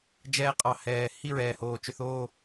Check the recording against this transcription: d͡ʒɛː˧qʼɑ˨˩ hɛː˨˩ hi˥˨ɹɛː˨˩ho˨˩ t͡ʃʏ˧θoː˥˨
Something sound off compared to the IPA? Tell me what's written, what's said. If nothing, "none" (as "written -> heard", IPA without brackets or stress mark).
o˨˩ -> oː˨˩